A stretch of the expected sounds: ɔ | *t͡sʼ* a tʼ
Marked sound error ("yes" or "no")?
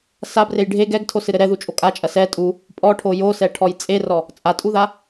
no